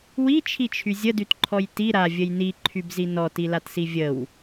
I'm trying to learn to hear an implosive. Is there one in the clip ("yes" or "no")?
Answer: no